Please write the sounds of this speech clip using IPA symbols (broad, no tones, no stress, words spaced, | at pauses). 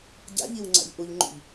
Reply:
ɟa̰ʎiwŋ͡ǀa̰ʎ ʔuʎŋ͡ǃṵʎ